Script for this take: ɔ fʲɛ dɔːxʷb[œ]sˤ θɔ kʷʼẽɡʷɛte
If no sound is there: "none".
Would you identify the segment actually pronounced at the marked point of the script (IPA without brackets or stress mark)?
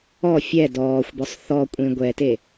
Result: œ